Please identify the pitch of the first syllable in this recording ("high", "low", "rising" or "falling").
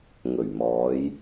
low